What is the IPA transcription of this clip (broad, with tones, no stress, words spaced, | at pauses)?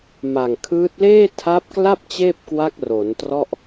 ma˨˩ŋkʰɯː˦˥t̚ leː˥˩tʰa˦˥p̚kla˥˩p̚ t͡ɕeː˥˩p̚kwa˦˥k̚ro˩˦ntrɔ˥˩ʔ